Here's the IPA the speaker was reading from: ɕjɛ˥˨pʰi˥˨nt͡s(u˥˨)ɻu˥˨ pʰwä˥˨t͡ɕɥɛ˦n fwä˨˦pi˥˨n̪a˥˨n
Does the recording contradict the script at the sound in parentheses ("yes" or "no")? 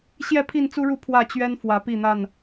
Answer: yes